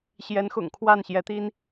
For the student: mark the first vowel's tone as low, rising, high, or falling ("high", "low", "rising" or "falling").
rising